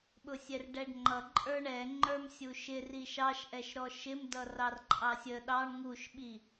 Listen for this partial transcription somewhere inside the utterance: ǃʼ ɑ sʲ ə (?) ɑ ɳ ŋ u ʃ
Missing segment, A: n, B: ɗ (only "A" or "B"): B